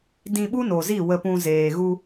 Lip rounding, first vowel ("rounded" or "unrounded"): unrounded